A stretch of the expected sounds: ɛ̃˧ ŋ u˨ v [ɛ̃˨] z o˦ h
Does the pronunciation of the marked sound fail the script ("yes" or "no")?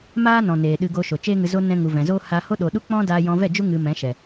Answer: no